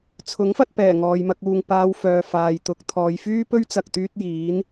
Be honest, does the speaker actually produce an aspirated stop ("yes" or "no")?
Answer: yes